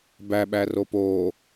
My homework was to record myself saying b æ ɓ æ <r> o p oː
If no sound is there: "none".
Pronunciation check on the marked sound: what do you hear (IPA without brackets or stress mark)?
r